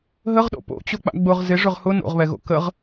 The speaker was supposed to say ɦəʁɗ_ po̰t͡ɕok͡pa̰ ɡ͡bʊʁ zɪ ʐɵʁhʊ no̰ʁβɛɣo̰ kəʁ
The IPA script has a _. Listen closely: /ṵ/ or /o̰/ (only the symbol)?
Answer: o̰